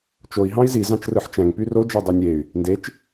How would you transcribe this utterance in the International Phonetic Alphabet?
t͡ʃ o i̯ ɦ ɑ̃ i̯ z i z ɑ̃ t͡ʃ r ɯ ħ t͡ʃ æ̃ ŋ p y r o d͡ʒ ɑ dˤ e nʲ e y̯ | n d e t͡ʃ

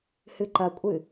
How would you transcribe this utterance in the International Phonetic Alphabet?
h ɨ ǃ ɐ kʷʼ ɨ

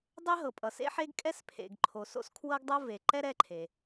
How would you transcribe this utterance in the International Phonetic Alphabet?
dˤ e˥ ɦ ɤ˩ pʼ ʌ˩ s ḛ˥ ħ e˥ ɡ kʼ ɛ˥ s pʰ ḛ˩ ɡ ǃʰ o˩ s o̰˥ s kʰ w ɤ˥ ɡ dˤ o˥ v e˩ ǃ ɛ˥ ɾ ɛ˥ ǃʰ e˩

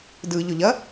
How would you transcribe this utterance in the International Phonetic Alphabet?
d ɯ ʎ ɵ ʎ ɐ

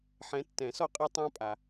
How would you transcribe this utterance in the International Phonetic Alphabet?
ħ ɛ̃˨˦ tː ɛ̃˨˩˦ s ɔ˦ qʼ e˦ tˤ ã˦ pʼ a˨

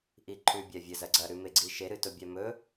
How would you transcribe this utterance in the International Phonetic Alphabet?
ʔ i ǃʰ ʉ bʲ a vʲ ɐ z ɐ ɡ͡ǀ ɐ ɾ ʉ m e ɡ͡ǀ i ʃ e ɾ ɨ t o bʲ a m ɵ

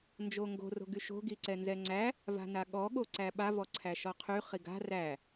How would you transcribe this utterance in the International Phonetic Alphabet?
n d͡ʒ o ŋ ɡ o̤ r o̤ ɡ y ʃ o̤ ɡ i ǀ ɛ n z ɛ ŋ͡ǀ æ | v a̤ n a ɠ ɔ ɠ o ǀ æ ɓ a v ɔ ǀʰ æ ʃ ɔ qʰ y χ i ɡ a̤ r æ

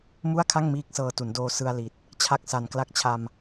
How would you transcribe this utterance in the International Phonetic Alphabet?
m u˥˩ a̯ kʰ a˥˩ ŋ m iː˦˥ k̚ s ɤː˧ t u˩˦ n d oː˧ s ɯ˧ a̯ l i˨˩ t̚ | t͡ɕʰ a˦˥ k̚ s a˨˩ n k l a˦˥ k̚ t͡ɕʰ a˧ m

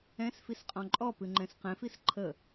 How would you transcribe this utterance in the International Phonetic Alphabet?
ɛ̃ s f i s qʼ ɔ̃ ǃʼ ɔ p ɨ ŋ͡ǃ ɛ̃ s q ɛ̃ f i s ǃʰ ə

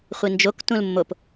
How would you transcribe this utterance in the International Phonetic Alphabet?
χʷ i n d͡ʒ o k t ũ l mː o p

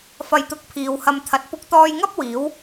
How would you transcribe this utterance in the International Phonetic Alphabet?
f ɐ˧ j t̪ ʊ˧ k̚ pʰ iː˨ w h ɐ˧ m t̪ʰ ɐ˨˥ t̚ p ʊ˧ k̚ t̪ ɔː˧ j ŋ ɐ˥ p̚ w iː˨˥ w

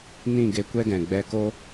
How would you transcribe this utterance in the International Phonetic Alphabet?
n ĩ˦˨ ɡ e˧ kʷ ɛ˦ ɡ ɛ̃˨ ɡ͡b ɛ˧ k o˦

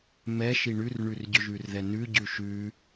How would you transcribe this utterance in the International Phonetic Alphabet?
m ɛ ʃ i ɳ ʉ r ɳ ʉ r ɟ ʏ ʒ ʉ r ð ɛ n ʉ ɟ ʉ ʃ ʉ

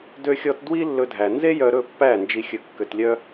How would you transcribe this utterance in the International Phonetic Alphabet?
d ø˧ xʲ ɔ˧ t d w i˦ lː ɵ˧ dʱ æ˨ n z e˦ j œ˧ ɾ ɵ˦˨ pː æ˦˨ n d͡ʒ i˧ xʲ ɵ˧ kː ø˧ t lʲ œ˦

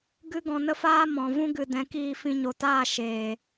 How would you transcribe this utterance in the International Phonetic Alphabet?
ɡ ɨ˦ ɡ ɔ̃˧ n ə˦ f aː˦ m ɔ̃˨ v ũ˦ ɡ ɨ˨ d ɛ̃˨˦ k iː˧ f ĩ˧ ɲ o˨ t aː˦˨ ʃ eː˨

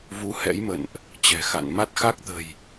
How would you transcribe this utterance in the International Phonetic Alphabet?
v u˧ h ɛ̰˧˥ j m ə̰˧˨ n ʔ | t͡ɕ ɛ̤˨˩ x a̰˧˨ n m a˦˥ t̚ x a˦˥ k̚ t̪ ə̤˨˩ j

